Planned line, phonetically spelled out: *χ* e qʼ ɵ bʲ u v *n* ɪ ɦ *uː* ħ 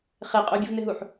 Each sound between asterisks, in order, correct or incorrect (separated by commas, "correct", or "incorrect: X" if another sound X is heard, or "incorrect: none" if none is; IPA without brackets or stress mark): correct, correct, incorrect: u